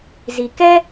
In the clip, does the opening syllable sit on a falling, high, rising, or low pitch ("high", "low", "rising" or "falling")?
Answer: low